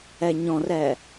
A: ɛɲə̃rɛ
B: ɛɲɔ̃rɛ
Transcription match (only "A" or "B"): B